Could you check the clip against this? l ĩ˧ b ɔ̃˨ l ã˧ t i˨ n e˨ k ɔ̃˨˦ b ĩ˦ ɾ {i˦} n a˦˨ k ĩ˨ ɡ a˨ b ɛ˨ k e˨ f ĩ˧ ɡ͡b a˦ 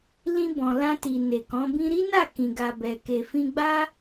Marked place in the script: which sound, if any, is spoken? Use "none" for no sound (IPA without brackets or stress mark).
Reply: i˦